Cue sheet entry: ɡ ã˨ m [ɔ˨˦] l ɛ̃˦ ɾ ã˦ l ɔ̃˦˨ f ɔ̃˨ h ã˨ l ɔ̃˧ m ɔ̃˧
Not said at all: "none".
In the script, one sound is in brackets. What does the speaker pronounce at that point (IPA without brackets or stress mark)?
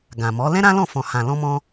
ɔ˨˦